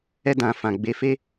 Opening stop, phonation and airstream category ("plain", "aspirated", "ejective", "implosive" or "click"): plain